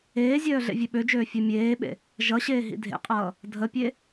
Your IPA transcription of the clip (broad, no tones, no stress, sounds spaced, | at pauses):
eː zʲ œː ɮ ḛ vʲ ø ɓ ø d͡ʒ øː fʲ œ mʲ eː ɓ ḛ | ʒ ʌ ɕ eː ɦ ḭ dʱ ḛ qʼ ʌː | dʱ ə pʲ e